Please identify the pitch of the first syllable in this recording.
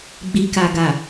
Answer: low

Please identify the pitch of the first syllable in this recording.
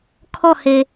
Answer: falling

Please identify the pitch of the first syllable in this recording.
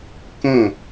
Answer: falling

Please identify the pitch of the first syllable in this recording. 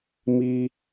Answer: high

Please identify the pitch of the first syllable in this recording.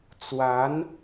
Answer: rising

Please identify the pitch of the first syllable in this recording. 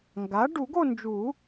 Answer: rising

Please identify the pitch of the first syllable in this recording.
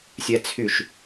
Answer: high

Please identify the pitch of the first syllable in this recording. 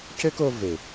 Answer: high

